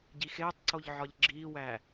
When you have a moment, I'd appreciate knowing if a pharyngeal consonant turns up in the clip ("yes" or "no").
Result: yes